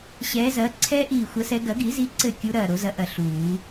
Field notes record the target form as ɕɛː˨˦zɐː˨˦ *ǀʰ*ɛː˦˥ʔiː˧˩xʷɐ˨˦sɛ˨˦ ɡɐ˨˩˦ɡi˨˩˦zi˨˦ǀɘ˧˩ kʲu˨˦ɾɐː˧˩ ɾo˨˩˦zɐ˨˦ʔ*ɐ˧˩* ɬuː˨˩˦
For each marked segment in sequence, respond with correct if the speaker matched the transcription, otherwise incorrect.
correct, correct

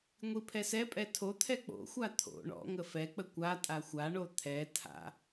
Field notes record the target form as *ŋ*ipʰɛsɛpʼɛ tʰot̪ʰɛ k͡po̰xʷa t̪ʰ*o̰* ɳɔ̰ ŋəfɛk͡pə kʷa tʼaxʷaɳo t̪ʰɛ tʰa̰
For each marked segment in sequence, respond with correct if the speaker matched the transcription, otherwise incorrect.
incorrect: ŋʷ, correct

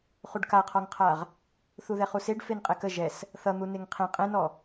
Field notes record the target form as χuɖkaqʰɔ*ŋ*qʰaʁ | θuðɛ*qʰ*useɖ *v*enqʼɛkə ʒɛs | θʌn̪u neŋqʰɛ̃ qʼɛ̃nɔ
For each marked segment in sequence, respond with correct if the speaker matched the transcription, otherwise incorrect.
correct, incorrect: χ, incorrect: f

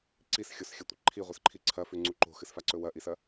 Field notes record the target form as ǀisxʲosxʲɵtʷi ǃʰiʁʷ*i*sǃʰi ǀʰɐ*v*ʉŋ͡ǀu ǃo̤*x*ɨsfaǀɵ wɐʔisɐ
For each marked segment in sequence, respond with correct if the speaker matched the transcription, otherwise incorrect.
correct, incorrect: f, correct

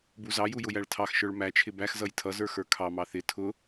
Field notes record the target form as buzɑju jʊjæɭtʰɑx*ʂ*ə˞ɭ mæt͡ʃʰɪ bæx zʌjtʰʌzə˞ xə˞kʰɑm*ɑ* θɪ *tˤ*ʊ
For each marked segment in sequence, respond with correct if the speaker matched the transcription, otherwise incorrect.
incorrect: ʃ, correct, incorrect: tʰ

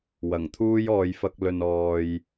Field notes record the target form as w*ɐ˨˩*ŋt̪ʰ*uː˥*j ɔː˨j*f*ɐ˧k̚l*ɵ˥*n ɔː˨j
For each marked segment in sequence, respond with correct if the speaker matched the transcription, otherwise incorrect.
correct, correct, correct, incorrect: ɵ˨

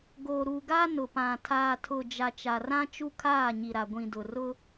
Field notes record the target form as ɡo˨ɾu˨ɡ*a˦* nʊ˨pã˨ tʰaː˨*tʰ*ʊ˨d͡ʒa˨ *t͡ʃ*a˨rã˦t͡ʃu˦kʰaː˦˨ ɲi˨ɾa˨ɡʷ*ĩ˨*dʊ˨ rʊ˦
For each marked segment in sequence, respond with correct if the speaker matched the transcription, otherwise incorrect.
correct, correct, correct, correct

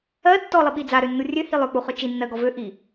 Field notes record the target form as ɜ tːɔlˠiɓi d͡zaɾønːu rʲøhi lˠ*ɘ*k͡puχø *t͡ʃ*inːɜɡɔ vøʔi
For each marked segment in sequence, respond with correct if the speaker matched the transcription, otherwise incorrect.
incorrect: ø, correct

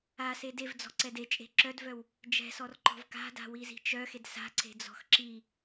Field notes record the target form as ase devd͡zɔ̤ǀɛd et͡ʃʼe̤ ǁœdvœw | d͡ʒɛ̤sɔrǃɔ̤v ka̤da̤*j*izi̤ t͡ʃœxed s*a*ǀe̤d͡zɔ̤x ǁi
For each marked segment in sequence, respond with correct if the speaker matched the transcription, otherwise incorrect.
incorrect: w, incorrect: a̤

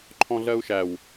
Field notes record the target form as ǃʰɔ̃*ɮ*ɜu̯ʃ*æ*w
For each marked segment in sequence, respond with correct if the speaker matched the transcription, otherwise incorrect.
correct, correct

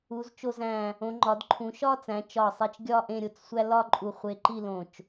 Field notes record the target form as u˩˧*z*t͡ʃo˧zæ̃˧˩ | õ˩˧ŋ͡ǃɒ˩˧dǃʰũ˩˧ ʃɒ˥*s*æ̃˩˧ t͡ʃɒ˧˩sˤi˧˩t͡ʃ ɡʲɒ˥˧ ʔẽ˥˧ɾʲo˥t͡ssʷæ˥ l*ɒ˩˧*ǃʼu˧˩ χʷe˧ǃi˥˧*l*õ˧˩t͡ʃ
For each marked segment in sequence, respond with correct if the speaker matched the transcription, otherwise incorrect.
correct, incorrect: t͡s, incorrect: ɒ˥˧, correct

